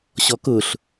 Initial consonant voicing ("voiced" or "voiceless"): voiceless